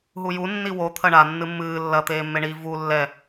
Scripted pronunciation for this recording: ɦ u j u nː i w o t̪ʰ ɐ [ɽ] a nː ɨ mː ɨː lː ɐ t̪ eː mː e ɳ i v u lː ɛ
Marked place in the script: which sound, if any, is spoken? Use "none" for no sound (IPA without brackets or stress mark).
ɳ